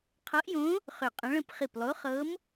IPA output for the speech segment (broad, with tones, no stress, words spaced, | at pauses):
qʰɤ˧˥ʔjõ˧˥ | χʏ˧˩qʼə̃˧˥ɭə̃˥˨p χi˧˩plˠo˧˥χɤ˧˥m